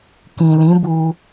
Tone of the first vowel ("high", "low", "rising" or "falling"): low